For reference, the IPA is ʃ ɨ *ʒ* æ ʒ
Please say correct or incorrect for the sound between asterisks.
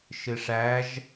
incorrect: ʂ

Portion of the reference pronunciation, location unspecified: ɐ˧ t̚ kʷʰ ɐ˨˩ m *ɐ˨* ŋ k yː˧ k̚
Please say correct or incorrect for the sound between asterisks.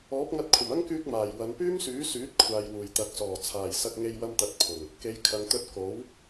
incorrect: ɐ˥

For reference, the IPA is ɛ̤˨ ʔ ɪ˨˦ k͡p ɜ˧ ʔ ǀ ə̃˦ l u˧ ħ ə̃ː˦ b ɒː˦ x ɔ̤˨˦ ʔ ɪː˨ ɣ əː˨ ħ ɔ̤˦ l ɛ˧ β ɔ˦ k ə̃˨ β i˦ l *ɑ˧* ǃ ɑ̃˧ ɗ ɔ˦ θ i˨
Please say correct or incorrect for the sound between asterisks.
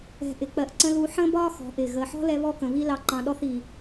correct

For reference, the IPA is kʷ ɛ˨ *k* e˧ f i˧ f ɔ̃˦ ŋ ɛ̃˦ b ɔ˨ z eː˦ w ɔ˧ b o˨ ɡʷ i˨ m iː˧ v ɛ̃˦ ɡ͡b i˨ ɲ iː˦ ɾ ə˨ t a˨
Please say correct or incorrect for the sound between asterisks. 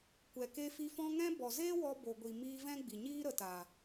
correct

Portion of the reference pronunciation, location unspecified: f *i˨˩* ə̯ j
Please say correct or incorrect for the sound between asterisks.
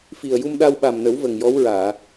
correct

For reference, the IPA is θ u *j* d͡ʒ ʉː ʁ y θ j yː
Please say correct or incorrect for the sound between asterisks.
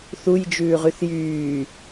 correct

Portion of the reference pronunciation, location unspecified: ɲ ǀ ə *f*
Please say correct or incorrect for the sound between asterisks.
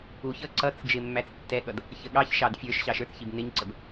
incorrect: b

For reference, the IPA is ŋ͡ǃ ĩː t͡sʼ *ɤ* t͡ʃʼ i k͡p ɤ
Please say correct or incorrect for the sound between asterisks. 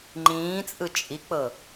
incorrect: ɯ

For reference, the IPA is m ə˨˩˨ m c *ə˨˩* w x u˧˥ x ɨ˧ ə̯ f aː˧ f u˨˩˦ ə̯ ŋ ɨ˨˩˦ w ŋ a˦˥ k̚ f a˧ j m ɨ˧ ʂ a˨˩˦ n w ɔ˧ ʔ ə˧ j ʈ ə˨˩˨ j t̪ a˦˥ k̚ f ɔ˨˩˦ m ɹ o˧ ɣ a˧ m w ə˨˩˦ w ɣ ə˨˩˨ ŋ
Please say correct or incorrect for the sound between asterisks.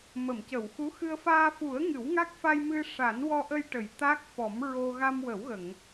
incorrect: ə˨˩˨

